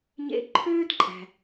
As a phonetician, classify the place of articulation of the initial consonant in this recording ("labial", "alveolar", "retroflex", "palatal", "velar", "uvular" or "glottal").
palatal